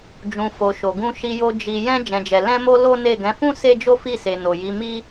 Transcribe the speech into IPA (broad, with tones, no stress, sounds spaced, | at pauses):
d͡ʒ ũ˨ f o˨ ʃ o˨ ɡ ũ˧ ʃ i˧ j o˧ d͡ʒ i˨ j ɛ̃˧ d͡ʒ ɛ̃˨ d͡ʒ ɛ˨ l ɛ̃˧ m o˧ l o˦ n e˦˨ ɡ ɛ̃˨˦ f ũ˦ s e˦ d͡ʒ o˦ f i˦˨ s e˨ n o˨ j i˨˦ m i˦